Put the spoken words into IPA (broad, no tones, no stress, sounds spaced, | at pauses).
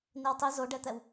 n i w tˤ i z o ɖ ɛ t̪ ɛ w